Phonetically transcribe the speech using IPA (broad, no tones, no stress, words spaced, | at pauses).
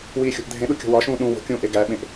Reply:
wiːxʲo̤ʔdʱẽɗu kʲo̤wɒʃũː ɗũ wo̤kʲũː ʔeɡæɓẽʔ